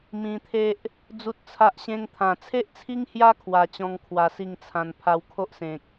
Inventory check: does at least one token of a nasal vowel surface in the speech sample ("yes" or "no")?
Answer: yes